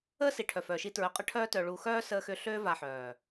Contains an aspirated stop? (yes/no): yes